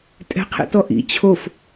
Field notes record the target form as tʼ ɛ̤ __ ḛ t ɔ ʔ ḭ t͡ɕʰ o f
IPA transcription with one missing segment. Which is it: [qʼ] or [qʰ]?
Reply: qʰ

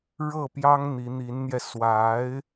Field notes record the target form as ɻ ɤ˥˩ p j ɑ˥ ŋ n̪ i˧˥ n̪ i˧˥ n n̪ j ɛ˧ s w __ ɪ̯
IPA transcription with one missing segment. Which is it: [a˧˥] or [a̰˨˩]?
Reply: a˧˥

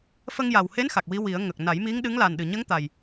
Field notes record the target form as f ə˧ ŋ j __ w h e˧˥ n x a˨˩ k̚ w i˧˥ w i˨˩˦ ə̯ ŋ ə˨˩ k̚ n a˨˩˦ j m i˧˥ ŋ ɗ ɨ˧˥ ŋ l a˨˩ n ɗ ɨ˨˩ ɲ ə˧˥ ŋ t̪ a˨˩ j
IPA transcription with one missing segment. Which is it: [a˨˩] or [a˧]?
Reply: a˨˩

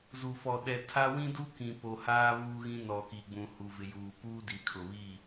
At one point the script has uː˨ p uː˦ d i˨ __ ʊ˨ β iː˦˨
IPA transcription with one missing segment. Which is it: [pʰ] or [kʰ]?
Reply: kʰ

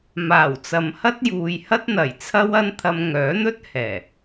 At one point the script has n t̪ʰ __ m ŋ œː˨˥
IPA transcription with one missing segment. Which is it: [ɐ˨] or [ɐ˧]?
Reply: ɐ˧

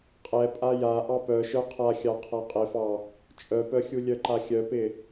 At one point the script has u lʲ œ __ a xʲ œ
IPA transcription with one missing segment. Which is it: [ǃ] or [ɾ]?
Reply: ǃ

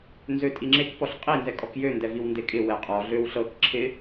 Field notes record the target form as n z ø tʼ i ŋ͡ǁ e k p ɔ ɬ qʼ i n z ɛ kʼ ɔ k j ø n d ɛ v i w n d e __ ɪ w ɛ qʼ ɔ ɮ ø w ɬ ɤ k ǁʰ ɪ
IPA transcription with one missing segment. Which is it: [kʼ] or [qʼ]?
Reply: kʼ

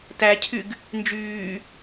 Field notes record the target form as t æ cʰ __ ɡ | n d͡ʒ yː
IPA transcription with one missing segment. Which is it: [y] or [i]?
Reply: y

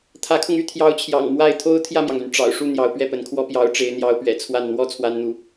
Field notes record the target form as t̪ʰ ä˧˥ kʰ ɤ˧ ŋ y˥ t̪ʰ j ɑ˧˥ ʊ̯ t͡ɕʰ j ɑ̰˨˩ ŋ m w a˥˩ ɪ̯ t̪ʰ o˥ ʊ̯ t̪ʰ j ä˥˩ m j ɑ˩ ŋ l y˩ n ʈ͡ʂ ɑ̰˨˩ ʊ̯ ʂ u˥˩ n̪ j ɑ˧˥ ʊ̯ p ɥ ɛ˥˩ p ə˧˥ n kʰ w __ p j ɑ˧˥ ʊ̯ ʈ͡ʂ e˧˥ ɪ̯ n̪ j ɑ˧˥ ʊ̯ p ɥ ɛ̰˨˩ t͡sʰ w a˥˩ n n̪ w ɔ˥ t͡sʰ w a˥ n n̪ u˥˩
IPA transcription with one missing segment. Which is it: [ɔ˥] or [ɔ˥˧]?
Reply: ɔ˥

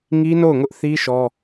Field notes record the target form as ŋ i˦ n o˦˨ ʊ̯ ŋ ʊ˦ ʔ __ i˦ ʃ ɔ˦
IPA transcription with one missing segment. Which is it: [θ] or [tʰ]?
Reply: θ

